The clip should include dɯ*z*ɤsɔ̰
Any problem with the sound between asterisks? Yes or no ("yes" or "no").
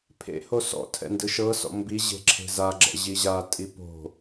yes